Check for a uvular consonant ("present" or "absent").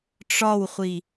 present